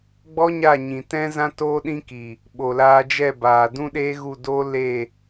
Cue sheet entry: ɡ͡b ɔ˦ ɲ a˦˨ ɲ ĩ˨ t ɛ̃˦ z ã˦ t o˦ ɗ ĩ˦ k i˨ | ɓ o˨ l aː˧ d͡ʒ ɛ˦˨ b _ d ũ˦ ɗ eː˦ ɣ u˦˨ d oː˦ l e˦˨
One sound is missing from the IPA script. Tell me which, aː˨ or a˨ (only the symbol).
aː˨